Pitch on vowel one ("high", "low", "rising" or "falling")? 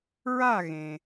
falling